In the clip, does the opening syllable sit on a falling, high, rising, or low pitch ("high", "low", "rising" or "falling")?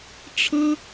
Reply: high